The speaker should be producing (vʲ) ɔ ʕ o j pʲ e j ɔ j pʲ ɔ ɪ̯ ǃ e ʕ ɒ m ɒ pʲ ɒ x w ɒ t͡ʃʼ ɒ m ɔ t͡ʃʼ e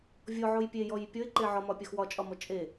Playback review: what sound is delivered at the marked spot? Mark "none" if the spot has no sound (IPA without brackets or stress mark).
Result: vʲ